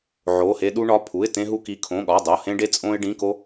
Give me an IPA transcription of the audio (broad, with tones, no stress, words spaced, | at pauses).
ʕo˩˧˩he˧ ɗu˧ɳɒ˩˧˩pʰu˩˧˩ɪ̯ tẽ˧ɦu˧ki˩˧˩ kʰõ˩˧˩ɠɒ˩˧˩ dˤo˩˧˩ hẽ˧ɖe˧t͡sʼõ˧ɪ̯ ɖĩ˩˧˩ko˧